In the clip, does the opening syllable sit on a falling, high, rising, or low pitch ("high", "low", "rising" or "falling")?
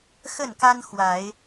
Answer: falling